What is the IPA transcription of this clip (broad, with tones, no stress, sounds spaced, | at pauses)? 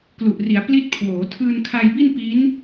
k l u˨˩ ʔ r i˩˦ a̯ p l i˦˥ t̚ kʰ w oː˩˦ tʰ ɯː˧ n kʰ a˧ j b i˥˩ n p i˦˥ n